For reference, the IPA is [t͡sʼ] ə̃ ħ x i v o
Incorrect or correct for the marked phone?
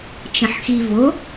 incorrect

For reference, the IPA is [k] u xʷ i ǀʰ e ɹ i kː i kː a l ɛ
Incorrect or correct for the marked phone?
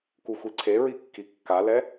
correct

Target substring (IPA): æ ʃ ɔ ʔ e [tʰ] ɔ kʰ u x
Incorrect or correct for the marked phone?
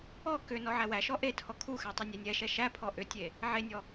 correct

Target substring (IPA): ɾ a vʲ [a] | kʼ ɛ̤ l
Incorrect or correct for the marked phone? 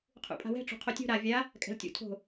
correct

